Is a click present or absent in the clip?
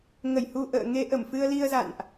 absent